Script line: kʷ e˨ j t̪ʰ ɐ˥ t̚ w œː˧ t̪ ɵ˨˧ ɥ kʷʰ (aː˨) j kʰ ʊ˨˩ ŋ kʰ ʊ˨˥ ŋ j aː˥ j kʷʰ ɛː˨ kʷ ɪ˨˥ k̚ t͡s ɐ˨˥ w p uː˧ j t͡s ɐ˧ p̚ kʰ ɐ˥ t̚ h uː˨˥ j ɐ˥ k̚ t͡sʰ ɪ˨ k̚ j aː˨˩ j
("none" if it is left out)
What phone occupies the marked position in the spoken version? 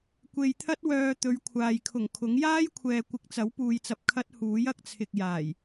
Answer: aː˨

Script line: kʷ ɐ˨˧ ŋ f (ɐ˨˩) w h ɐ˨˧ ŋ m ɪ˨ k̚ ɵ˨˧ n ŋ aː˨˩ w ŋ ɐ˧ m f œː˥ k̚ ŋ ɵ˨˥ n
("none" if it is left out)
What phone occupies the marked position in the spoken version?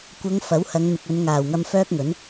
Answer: ɐ˨˥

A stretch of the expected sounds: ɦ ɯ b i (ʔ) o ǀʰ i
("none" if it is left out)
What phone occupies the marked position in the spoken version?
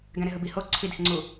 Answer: h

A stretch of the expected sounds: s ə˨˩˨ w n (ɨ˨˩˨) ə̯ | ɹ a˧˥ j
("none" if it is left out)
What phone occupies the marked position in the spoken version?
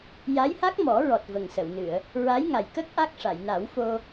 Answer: ɨ˨˩˨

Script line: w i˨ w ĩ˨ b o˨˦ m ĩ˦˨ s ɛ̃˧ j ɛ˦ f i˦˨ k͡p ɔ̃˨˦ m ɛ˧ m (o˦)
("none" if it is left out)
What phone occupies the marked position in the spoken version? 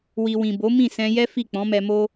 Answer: o˦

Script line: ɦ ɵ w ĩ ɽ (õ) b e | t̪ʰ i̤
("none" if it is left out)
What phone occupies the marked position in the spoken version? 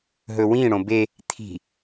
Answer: õ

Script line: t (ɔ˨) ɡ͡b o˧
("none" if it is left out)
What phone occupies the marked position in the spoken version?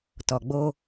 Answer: ɔ˨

